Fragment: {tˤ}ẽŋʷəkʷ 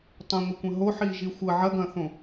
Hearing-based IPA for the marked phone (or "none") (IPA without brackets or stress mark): tˤ